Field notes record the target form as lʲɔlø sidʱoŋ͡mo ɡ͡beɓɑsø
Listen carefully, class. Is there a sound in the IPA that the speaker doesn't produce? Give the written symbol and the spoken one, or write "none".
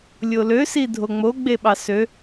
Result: ɔ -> o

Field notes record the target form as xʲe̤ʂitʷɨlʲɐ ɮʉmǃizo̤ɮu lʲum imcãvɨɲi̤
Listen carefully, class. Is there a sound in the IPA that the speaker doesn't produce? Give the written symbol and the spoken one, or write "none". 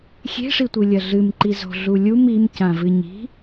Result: ʉ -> ɨ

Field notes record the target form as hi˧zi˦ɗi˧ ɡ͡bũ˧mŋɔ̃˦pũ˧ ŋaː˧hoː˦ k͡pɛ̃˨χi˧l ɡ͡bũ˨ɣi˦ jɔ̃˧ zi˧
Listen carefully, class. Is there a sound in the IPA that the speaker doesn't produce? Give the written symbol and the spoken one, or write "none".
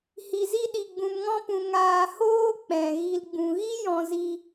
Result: χ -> ɣ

